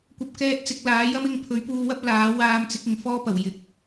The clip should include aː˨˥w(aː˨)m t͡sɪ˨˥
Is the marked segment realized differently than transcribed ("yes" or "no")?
yes